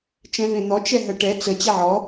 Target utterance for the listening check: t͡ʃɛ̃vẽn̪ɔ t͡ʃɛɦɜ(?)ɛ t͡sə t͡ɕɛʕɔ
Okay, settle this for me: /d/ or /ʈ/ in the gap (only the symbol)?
ʈ